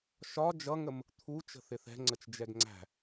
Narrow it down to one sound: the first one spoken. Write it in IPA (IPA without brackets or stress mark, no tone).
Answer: ʃ